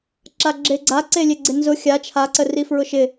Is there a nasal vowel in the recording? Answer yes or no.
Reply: no